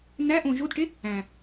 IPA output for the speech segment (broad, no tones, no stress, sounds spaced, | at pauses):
n æ ʔ õ ʒ o d ʈ e | æ̃